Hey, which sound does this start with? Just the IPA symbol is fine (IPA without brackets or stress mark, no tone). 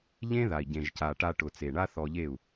ʎ